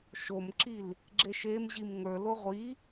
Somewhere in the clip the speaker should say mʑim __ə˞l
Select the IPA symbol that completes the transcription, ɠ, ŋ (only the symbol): ŋ